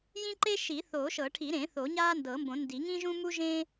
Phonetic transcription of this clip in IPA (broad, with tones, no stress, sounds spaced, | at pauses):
j ĩ˥ ǃ e˥ ʃ i˨˩˦ θ oː˨˩˦ ʃ ɤ˨˩˦ ʈʰ i˨˩˦ ɾ ẽ˨˩˦ θ o˨˩˦ ɲ aː˥ n d ɤ˨˩˦ m b õ˨˩˦ n d i˨˩˦ ŋ ĩ˥ ʒ ũ˥ m u˥ ʒ ẽ˥